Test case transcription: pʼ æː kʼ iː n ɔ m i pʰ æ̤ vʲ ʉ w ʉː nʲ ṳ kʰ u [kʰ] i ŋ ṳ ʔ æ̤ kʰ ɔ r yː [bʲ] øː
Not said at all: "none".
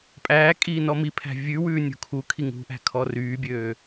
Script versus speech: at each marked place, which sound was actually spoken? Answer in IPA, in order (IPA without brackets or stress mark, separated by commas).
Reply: kʰ, bʲ